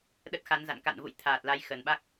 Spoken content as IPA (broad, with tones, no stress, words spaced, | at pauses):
ɗə˦˥t̚xa˨˦nza̰˧˨n ka̰˧˨nvṵ˧˨j t̪ʰaː˨˩t̚la˨˦j xə˨˩nɓa˦˥k̚